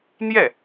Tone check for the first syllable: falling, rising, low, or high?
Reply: falling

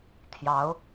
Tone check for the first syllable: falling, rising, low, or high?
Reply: rising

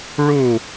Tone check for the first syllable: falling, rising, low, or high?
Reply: falling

